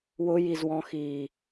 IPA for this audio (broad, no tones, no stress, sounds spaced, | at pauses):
w ʊ j i z w ɔ̃ x iː